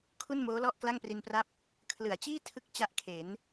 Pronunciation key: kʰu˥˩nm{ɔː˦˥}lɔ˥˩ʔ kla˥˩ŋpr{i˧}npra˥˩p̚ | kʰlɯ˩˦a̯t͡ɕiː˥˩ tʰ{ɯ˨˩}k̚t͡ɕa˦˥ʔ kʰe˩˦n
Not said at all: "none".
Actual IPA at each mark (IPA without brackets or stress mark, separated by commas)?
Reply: oː˦˥, i˧, ɯ˥˩